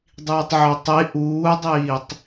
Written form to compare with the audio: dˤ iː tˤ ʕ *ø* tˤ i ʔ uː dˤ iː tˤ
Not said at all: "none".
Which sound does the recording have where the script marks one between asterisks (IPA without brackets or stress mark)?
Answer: ø